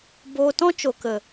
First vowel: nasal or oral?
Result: oral